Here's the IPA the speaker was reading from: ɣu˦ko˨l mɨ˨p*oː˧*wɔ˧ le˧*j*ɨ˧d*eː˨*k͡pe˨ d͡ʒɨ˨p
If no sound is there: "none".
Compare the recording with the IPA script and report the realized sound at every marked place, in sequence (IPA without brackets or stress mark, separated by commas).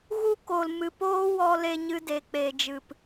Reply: oː˦, ɲ, e˨